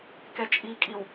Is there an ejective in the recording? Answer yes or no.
yes